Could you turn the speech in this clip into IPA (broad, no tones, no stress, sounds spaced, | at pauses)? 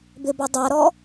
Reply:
b ɪ b œ dˤ a ɾ ɔ